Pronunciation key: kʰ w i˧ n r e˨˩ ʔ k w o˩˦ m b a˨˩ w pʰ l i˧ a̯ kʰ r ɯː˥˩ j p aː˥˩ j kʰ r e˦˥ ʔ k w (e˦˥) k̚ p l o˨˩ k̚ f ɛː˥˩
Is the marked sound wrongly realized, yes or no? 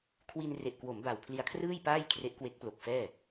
no